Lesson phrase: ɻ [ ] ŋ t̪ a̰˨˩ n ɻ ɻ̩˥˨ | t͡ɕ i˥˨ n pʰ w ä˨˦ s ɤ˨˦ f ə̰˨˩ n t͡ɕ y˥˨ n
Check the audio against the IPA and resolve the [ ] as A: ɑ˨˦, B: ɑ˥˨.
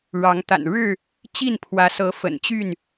A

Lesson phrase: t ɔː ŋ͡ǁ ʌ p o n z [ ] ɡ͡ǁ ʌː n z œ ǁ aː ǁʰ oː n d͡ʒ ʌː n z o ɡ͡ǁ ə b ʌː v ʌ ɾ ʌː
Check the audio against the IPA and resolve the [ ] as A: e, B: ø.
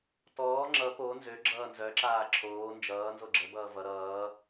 B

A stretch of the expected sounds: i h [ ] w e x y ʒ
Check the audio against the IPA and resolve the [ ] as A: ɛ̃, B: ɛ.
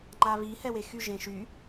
B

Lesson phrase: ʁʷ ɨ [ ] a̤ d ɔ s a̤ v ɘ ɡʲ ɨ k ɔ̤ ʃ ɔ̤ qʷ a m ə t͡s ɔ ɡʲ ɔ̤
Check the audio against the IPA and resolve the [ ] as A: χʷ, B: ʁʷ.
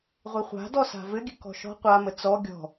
A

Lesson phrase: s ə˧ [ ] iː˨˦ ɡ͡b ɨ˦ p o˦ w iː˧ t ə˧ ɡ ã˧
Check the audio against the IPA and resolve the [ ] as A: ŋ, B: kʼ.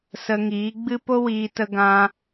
A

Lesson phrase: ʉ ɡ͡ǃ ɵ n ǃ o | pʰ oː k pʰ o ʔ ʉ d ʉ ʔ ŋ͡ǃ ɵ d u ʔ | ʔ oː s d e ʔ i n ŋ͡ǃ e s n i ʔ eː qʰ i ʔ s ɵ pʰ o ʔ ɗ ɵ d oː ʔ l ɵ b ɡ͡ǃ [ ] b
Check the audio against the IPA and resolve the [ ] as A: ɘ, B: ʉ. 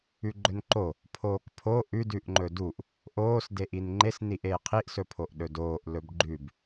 B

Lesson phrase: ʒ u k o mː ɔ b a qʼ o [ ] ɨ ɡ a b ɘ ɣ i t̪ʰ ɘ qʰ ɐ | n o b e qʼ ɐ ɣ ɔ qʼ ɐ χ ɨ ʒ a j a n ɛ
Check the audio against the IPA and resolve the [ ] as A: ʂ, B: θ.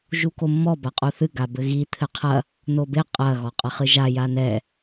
B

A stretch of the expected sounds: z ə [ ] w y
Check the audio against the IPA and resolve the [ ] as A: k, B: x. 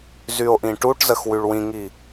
B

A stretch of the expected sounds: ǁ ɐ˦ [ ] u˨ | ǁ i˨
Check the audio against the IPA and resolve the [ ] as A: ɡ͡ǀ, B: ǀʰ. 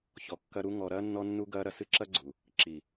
A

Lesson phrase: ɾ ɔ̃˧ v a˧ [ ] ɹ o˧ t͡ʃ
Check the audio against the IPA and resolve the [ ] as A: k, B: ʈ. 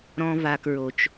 A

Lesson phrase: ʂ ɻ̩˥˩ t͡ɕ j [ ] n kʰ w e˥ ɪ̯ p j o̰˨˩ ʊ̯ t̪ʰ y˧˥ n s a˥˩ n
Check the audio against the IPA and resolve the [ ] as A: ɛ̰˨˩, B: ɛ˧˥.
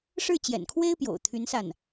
A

